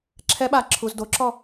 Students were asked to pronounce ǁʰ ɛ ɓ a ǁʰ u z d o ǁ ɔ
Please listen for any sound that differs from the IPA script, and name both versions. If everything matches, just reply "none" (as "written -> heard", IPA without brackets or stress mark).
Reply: none